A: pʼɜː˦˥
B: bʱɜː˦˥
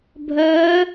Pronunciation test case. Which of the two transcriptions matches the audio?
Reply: B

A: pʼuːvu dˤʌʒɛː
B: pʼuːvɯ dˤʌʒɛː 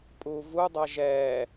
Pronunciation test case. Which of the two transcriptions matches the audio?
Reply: A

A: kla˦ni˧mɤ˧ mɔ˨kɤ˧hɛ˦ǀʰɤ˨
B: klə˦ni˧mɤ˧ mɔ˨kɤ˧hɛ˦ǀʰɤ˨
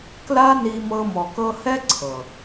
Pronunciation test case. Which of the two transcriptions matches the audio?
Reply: A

